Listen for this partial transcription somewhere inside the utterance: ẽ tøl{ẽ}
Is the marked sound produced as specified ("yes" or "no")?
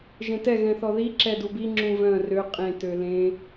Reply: yes